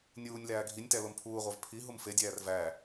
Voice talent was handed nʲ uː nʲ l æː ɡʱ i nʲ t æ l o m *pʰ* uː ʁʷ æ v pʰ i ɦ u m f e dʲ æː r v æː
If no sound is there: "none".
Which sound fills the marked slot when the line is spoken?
pʰ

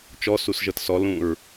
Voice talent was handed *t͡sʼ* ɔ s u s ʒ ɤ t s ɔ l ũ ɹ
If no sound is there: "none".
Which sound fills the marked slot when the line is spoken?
t͡ʃ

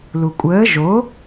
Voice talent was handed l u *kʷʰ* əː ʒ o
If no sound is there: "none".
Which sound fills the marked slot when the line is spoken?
kʷʼ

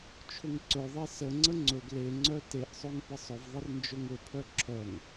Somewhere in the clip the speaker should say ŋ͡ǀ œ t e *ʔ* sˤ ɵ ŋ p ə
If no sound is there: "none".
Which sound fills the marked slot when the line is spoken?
ʔ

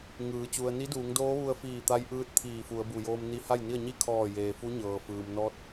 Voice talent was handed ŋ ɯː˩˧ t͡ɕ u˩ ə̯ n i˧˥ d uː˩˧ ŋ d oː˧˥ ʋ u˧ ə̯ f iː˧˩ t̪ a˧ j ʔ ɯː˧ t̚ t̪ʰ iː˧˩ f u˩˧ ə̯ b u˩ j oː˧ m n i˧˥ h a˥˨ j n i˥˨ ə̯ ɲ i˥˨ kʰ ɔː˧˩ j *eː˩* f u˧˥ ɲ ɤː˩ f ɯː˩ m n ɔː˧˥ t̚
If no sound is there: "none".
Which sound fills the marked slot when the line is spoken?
eː˩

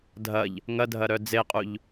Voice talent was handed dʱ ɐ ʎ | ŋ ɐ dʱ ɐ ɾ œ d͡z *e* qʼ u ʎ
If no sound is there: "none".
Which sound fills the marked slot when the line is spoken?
e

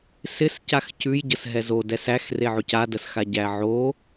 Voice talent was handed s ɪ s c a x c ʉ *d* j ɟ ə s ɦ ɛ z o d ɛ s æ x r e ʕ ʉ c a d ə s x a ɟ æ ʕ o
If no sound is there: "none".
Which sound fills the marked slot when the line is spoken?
none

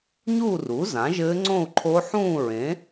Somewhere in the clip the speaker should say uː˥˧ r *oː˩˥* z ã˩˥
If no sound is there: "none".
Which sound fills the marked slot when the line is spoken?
uː˩˥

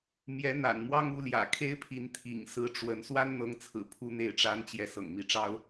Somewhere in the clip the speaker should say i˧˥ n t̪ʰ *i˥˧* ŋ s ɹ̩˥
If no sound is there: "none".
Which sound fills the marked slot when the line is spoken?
ḭ˨˩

